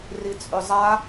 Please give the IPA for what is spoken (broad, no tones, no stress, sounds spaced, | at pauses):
r i t͡sʼ ʏ zˤ a